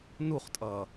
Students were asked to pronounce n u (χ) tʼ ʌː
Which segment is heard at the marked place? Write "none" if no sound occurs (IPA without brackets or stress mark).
χ